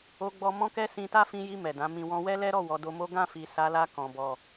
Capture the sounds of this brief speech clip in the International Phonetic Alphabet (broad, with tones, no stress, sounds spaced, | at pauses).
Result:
o˧ ɡ͡b ɔ˧ m ɔ̃˦ k ɛ˦ s ĩ˧ t a˦ f ĩ˧ j i˧ m ɛ˨ d ã˨˦ m ĩ˧ w ɔ̃˦ w ɛ˦ l ɛ˦ ɾ ɔ˦˨ w ɔ˨˦ d o˧ m o˦ ɡ ã˦˨ f i˨ s a˨˦ l a˧ k ɔ̃˨ b ɔ˨